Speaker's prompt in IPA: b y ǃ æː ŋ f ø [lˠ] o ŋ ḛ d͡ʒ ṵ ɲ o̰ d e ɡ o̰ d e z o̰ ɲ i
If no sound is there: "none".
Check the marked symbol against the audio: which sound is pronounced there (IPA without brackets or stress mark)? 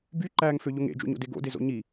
ʎ